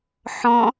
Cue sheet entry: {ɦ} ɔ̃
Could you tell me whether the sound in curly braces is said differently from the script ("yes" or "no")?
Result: yes